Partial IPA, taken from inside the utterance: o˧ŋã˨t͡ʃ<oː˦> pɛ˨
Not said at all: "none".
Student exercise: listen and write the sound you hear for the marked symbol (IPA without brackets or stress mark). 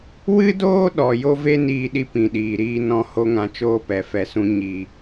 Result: oː˧